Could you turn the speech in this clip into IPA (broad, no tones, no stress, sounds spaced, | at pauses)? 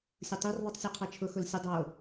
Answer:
sʲ ʊ tˤ i r ðˤ i tˤ sʲ e qʰ ɛ t͡ʃʰ ʊ x ʊ l sʲ ʊ dˤ o